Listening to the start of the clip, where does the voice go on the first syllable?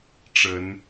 rising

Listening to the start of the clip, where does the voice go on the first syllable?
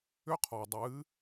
high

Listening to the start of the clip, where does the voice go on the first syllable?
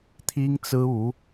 high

